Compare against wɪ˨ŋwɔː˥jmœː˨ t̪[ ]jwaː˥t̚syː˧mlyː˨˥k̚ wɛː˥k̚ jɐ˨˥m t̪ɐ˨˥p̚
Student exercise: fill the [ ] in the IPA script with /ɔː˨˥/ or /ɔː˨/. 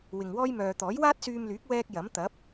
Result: ɔː˨˥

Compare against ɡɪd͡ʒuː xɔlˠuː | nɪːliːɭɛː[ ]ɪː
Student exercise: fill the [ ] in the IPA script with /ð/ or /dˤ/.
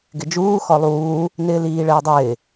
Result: dˤ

